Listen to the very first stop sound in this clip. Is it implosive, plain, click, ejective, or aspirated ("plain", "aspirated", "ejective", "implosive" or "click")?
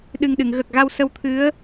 implosive